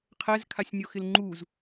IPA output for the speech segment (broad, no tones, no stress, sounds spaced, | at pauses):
qʰ ɛ z kʰ a sʲ nʲ o x ɪ l ŋ͡ǃ u z